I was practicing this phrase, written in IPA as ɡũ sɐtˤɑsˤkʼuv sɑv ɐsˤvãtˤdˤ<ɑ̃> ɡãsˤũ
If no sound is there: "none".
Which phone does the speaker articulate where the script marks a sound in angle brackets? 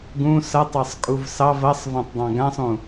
ɑ̃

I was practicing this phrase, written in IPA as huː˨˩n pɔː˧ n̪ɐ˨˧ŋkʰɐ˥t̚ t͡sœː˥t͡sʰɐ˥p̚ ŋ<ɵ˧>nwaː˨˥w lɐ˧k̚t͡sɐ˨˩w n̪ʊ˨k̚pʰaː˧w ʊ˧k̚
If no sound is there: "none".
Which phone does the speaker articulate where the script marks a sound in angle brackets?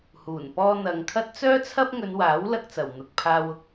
ɵ˨˧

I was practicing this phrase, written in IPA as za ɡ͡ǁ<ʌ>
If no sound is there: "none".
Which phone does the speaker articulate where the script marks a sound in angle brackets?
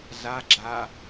a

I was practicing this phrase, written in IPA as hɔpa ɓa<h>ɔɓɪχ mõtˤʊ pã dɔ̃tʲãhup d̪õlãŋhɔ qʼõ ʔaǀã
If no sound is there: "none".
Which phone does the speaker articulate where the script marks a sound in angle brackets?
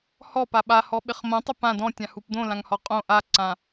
h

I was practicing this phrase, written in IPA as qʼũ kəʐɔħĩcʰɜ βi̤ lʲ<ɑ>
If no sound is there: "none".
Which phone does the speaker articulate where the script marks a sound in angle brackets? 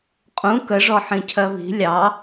ɑ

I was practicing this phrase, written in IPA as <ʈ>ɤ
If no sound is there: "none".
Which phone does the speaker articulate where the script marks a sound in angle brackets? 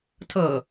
tʰ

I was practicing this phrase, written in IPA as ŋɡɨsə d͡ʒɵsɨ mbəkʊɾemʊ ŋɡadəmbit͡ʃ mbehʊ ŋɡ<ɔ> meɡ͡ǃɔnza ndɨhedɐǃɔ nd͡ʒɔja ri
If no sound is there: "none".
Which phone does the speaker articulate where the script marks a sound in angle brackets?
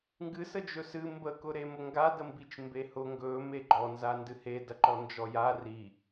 ɵ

